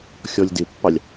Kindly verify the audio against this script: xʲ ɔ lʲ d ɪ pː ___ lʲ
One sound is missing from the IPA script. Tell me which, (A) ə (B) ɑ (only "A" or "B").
B